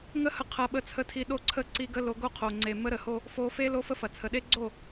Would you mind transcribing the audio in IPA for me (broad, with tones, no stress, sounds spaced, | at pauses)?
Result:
ŋ ə˦ h ə˧ qʰ ɐ˧ ɓ ə˧ t͡sʰ ə˧ tʰ i˧ ɗ o˦˨ ǀʰ ə˦ ǀ i˧ ɡ ə˧ l o˨˦ ɡ o˦ qʰ o˨ ŋ͡ǀ e˨ m ə˦ ɾ ə˨ h o˦ | f o˧ f e˦ l o˦ f ə˦ f ɐ˨ t͡sʰ ə˨ ɗ e˦ ɡ͡ǀ o˦˨